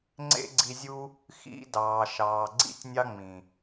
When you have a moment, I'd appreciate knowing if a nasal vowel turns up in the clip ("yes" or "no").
yes